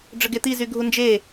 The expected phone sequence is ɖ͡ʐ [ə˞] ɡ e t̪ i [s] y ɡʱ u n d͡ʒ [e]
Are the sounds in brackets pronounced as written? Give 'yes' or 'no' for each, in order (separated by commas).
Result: no, no, yes